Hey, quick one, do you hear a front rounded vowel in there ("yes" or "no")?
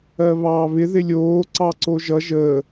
no